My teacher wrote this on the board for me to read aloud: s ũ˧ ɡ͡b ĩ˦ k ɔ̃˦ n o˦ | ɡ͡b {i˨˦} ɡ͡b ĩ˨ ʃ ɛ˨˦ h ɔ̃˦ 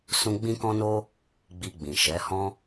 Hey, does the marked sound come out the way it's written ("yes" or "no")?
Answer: no